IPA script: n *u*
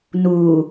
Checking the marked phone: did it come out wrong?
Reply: no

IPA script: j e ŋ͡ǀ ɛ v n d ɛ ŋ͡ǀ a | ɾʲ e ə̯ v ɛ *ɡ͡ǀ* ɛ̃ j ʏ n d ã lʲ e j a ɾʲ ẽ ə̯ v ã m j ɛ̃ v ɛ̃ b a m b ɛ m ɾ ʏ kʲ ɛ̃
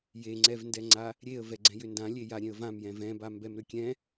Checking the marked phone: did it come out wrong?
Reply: no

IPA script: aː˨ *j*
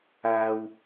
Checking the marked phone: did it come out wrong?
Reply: yes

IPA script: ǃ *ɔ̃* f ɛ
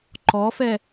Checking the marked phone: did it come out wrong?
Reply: yes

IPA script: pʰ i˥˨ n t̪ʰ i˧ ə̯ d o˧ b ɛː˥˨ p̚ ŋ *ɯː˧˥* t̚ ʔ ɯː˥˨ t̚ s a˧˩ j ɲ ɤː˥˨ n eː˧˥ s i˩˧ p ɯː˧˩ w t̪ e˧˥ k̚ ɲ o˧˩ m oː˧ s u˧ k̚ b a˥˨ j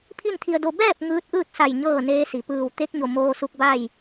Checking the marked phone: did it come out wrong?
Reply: no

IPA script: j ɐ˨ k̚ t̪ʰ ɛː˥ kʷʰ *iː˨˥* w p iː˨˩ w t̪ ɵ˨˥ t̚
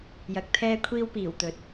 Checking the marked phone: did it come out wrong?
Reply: yes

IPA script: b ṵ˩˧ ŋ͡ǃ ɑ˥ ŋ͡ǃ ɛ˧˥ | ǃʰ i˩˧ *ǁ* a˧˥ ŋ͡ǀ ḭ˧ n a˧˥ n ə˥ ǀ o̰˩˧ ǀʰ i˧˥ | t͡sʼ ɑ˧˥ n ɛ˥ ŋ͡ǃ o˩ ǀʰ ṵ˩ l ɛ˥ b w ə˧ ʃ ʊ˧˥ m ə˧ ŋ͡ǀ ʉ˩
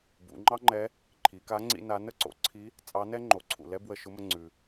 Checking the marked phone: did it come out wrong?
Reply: yes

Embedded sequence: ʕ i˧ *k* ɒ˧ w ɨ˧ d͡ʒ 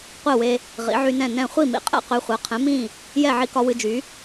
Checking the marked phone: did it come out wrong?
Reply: no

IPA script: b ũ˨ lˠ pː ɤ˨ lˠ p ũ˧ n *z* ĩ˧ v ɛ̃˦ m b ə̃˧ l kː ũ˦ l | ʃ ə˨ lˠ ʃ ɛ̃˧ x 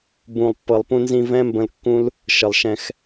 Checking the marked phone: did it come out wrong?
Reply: no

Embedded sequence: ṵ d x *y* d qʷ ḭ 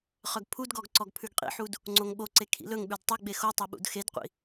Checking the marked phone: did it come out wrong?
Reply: yes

